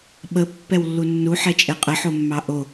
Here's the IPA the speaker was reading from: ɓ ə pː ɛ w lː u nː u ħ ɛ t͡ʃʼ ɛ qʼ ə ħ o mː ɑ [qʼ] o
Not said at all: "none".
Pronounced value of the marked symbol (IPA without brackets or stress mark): ʔ